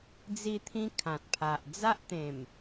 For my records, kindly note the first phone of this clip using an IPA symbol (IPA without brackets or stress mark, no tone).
d͡z